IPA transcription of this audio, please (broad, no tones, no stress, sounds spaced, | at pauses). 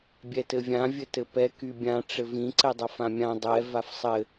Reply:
bʲ ɛ t ɘ vʲ ã vʲ ɘ t ɘ p ɛ k y bʲ ã ʈ͡ʂ ɘ v ĩ ǀ ɛ dˤ a f ã mʲ ã dˤ ɛ v a f sˤ ɘ